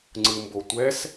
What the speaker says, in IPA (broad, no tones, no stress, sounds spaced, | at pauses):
ŋ͡ǀ ɯ m b o tʷ ɛ s